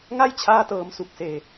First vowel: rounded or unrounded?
unrounded